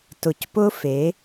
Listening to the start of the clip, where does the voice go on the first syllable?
low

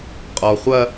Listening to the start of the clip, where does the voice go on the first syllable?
low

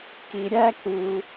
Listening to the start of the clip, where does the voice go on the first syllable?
low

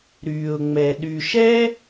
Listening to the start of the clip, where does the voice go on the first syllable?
low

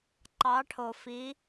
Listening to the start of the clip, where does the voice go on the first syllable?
rising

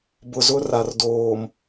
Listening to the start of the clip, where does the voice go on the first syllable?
low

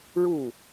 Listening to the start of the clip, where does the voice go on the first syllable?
falling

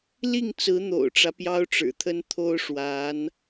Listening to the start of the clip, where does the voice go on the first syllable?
falling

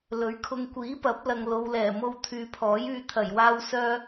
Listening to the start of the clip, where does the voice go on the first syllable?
rising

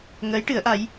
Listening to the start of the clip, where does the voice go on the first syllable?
rising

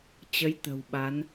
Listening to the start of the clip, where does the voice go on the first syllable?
rising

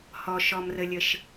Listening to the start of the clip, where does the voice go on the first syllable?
low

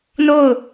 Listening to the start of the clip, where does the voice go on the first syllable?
falling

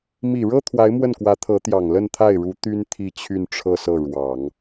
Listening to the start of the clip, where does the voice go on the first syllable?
low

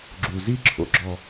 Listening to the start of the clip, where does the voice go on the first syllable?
low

